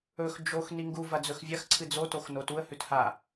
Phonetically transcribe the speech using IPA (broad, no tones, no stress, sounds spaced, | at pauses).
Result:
ɵ x d͡ʒ o x n i ŋ ɡ u v ɐ d͡z ɵ x vʲ ɐ x ǀʰ ɨ d͡z o t o x n o t u ə̯ h ʉ t h a